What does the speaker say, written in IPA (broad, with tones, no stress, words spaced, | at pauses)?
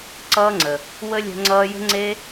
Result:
ǀʌː˦ŋ͡ǀə˨ | wə˦lʲə̤˧ ŋ͡ǀʌː˧jə̤˦ŋ͡ǀe˦